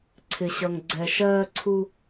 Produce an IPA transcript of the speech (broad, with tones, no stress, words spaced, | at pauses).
ǀʰɪ˨ɕʌ˨ŋ ɡ͡ǀɛ˨ʃɜː˧ǀʰu˧